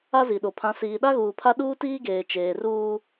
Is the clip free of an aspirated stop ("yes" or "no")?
no